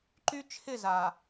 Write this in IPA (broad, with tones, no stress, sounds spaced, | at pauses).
ǃ y˦ t͡ʃʰ ɪ˦˨ z a˨